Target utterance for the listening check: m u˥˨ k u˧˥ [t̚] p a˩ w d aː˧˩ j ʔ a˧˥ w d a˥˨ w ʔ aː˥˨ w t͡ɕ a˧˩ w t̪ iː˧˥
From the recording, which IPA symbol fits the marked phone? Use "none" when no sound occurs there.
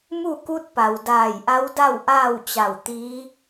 t̚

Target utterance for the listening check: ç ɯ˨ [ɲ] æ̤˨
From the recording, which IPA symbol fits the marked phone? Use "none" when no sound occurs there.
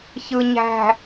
ɲ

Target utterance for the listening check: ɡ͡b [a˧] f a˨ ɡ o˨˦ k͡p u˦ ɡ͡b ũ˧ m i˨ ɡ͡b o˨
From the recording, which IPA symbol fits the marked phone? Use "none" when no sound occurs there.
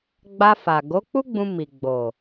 a˧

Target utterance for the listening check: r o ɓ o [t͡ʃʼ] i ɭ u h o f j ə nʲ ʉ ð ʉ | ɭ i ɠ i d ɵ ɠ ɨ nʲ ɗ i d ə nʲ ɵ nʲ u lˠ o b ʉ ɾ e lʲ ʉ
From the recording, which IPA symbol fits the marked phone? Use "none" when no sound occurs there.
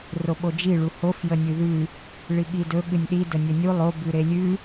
d͡ʒ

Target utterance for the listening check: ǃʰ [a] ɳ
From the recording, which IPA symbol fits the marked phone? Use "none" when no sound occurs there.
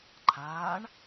aː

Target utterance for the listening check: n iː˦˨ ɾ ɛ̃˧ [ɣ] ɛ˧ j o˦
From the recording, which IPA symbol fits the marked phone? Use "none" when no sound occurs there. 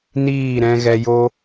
ɣ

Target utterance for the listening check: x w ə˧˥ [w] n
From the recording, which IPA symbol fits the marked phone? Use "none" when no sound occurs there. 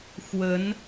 none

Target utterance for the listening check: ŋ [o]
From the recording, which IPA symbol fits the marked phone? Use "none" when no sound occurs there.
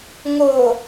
o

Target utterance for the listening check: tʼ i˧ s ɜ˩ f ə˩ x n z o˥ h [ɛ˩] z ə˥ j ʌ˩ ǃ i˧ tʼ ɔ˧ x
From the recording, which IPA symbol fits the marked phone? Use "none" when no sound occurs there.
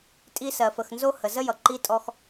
ə˩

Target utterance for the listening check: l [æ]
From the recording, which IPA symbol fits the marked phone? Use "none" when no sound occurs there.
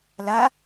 a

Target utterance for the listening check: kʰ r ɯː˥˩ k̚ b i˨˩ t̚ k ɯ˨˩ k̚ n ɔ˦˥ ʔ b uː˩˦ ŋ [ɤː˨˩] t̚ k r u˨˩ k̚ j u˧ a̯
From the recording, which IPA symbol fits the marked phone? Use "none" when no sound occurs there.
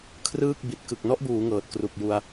ɤː˨˩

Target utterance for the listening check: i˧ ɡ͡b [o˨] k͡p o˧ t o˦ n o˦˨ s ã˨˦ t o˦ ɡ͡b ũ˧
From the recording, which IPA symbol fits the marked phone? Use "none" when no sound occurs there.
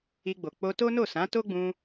o˨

